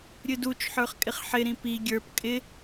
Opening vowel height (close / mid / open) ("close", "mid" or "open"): close